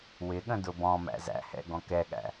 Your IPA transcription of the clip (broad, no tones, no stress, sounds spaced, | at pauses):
w ɪ ɠ ə̃ d ʊ b ɔ̃ m æ̰ z æ̰ h ɛ̰ ɡ ɔ̃ k ɛ ɠ æ̰